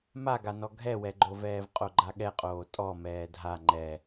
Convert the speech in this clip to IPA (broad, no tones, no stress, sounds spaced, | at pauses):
m a ɡ a n ɔ ɡʱ ɛ w ɛ ɡ͡ǃ o v ɛː v qʼ o ɡ͡ǃ a ɠ ɛ qʼ oː tʼ ɔ m ɛː dʱ a ŋ͡ǃ ɛ